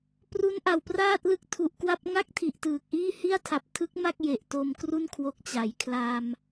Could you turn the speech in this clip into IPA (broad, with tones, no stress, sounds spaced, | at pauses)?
p r u˦˥ n ʔ a˨˩ w p r aː˥˩ t̚ l ɯ˦˥ k̚ tʰ u˨˩ ʔ k w a˥˩ p̚ ŋ a˥˩ k̚ tʰ i˨˩ ʔ t ɯː˨˩ k̚ ʔ iː˥˩ h i˥˩ a̯ tʰ a˨˩ p̚ tʰ ɯ˦˥ k̚ m a˥˩ k̚ j e˨˩ ʔ t o˧ m k r u˥˩ n kʰ w o˦˥ k̚ t͡ɕ a˩˦ j kʰ l a˧ m